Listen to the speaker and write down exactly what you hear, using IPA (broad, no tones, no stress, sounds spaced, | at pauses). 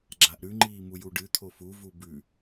ɡ͡ǁ a ʔ ɾ ʉ ŋ͡ǃ iː m u j u ɖ ɨ t̪ʰ o f u v u b ʉ